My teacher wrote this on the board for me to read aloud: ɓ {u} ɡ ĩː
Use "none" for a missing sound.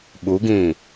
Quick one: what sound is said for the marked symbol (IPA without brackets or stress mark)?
u